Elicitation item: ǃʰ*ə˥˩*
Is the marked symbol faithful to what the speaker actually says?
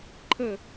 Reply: yes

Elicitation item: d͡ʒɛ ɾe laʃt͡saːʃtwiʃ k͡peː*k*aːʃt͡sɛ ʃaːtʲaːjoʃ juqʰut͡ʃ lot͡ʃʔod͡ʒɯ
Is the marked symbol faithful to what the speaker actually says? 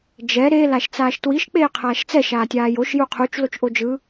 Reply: no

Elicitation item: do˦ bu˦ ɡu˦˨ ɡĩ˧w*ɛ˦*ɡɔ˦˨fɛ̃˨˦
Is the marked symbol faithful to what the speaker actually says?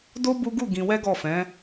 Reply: yes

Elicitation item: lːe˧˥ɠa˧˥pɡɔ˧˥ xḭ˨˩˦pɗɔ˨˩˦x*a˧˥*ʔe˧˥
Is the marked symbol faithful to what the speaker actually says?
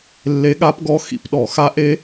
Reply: yes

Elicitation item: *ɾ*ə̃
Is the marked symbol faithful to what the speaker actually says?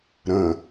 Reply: yes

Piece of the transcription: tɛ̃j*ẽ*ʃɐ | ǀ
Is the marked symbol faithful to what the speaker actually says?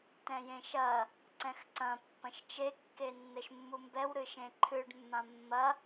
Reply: yes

